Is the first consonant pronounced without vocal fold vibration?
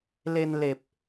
no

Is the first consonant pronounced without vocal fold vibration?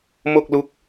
no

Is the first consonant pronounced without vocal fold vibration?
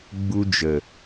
no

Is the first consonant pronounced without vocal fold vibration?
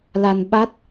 no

